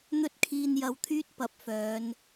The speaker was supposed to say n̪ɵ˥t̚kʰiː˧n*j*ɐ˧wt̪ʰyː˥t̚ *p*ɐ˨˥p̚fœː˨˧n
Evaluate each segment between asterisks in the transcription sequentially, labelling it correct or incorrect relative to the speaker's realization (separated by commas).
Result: correct, correct